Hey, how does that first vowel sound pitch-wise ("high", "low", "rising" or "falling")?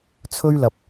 high